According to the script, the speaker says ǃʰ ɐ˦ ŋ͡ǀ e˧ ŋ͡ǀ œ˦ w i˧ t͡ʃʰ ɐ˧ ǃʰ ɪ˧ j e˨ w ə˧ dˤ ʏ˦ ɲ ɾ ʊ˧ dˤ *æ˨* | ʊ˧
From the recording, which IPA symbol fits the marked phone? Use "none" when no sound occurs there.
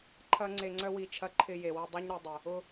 ə˨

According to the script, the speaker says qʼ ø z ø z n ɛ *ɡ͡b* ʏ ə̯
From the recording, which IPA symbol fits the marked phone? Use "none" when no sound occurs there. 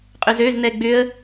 ɡ͡b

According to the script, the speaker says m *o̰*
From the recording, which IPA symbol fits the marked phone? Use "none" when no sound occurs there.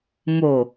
o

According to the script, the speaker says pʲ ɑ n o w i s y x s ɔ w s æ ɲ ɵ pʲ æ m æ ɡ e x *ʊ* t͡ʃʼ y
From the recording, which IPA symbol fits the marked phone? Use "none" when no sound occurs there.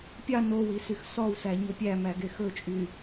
ɵ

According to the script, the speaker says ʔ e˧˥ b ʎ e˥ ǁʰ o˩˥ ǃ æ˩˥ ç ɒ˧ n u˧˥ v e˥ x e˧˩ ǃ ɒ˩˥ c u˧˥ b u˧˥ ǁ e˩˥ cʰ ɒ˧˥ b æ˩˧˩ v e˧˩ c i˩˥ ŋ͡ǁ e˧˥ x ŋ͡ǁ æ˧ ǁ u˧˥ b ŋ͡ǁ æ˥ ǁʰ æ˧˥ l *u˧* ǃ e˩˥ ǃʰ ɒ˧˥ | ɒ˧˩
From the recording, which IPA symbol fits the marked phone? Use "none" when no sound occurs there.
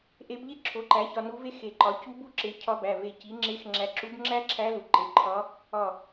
u˧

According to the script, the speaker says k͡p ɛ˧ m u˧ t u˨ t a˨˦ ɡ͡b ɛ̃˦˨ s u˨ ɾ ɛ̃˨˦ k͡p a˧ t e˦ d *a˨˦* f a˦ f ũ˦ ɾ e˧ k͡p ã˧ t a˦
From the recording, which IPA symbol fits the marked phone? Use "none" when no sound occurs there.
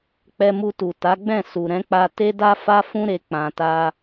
a˦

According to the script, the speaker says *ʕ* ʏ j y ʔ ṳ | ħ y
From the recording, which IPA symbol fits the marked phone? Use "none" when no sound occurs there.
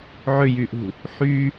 ʕ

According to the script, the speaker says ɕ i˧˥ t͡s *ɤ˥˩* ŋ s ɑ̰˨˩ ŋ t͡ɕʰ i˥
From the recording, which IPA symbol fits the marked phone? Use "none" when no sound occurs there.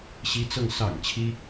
ɤ˥˩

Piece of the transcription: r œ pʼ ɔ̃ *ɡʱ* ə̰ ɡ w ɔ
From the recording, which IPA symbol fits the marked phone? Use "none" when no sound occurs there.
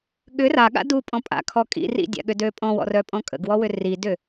kʼ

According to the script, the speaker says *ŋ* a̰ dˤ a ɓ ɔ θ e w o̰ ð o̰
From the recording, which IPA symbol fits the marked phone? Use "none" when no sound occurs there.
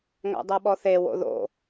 ŋ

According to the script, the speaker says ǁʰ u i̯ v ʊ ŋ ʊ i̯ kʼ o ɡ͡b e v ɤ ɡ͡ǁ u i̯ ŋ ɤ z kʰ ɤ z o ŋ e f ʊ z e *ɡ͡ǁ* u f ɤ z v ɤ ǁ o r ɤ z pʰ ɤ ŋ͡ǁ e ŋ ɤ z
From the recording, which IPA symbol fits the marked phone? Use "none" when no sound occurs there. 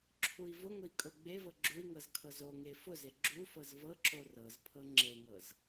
ɡ͡ǁ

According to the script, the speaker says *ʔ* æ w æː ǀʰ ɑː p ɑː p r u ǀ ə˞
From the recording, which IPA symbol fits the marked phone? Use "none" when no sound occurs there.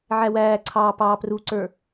ʕ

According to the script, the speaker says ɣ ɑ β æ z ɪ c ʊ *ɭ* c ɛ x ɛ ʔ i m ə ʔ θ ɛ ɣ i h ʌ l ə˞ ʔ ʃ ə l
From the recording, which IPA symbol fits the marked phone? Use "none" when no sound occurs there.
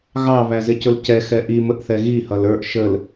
l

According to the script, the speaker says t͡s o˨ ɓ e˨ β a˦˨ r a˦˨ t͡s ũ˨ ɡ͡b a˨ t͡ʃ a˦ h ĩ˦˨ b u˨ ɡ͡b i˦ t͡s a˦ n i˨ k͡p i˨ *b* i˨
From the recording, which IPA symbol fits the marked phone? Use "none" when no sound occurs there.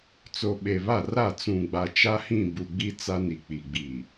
ɡ͡b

